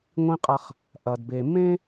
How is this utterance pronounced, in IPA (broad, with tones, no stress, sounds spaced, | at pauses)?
ŋʷ ĩ˦ qʼ a˦ χ | ʔ ɐ˨ d b e˨ m ẽ˦